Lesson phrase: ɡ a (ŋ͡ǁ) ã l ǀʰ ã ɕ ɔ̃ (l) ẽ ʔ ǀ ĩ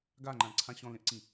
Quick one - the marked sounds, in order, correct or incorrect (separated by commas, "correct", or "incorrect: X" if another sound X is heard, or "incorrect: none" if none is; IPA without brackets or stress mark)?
incorrect: ŋ͡ǃ, correct